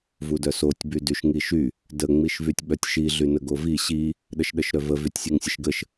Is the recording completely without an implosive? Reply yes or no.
no